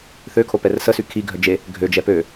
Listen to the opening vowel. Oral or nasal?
oral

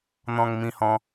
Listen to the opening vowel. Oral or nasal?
nasal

